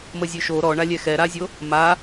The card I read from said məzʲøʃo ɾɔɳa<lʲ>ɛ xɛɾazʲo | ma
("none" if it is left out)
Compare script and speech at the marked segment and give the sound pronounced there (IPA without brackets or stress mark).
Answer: lʲ